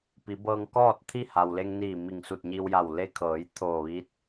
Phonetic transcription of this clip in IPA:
pi˩˧bɤː˧ŋ kɔː˥˨t̚t̪ʰi˥˨ha˩wle˧ŋ niː˧˩ mi˧˩ŋsu˧˩t̚ɲi˧wja˧˩w le˧kʰɤː˩˧j t̪ʰoː˧˩ʋiː˧˥t̚

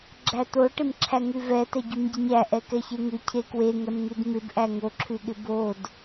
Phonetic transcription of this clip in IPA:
ɡ͡ǁæt̪oʈɪmǁʰæ ŋʉvɛ tɛɟʉmɟɪɲæ ʔɛkɛçeŋʉ cʰekwe ŋɛmŋʉdmɪb ʔæŋoǁʰʉɠɪ bod

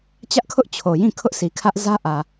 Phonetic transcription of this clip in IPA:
t͡ɕä˦ʔkʰʊ˦ʔ t͡ɕʰo˨jĩ˦˨kʰʊ˦ʔ si˨kʰä˦ʔ zä˦ʔä˨

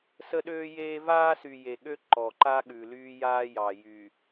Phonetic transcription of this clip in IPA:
sə˦ɗøː˦jeː˦ vaː˦sy˨ je˨ ɠø˦ ǃɔ˨ǃa˦ɠʉ˨ lyː˦jaː˦jɑ˨ jyː˨

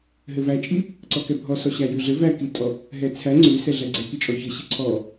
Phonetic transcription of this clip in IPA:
ɦɘvæt͡ʃʼi | ǀɔkɛbʱɔsɔ ɕæjʉɮɘ vækitʼɔ | ɦɛt͡sʰæ ŋ͡ǀʉ sɛɮæɡ͡ǀɛ kit͡ʃʼɔçɘɕi ǀʰɔ

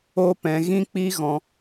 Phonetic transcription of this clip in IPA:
o˦pɛ̃˧ ɣĩ˦k͡pi˦ ɣɔ̃˧

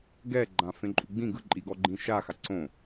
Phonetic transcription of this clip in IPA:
ɡɛɡ͡ǃã fẽǃʼuɡ͡bĩ ɡɯǃʼiɡɔ ɡ͡ǃĩʃaxa ǀõ

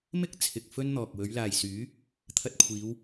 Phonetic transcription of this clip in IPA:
mɪ˥k̚ t͡sʰɪ˨k̚fɵ˥nn̪ɔː˨k̚ wɵ˨˧ɥlaː˨j syː˨˥ | t̪ʰɐ˧t̚kʷʰiː˨˧w

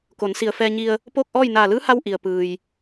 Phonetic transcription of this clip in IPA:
ko˩˧nsi˧˩ə̯fɛː˧ɲi˧ə̯ | poː˥˨k̚ʔɔː˥˨j naː˧˩lɯː˧˥ha˧w ʔi˩ə̯pɯː˩j

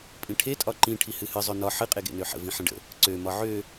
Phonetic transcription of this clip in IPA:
pʼĩʈʰe tʼɒǃĩ ʈʰihɨhɨ zˤønɒ ħɨ qʼeɡḛnøħə̰ vĩħə̃ɖə̰ | ǀø mɒʕø

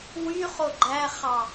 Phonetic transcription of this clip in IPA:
wyχo ɡ͡ǃæχɑ

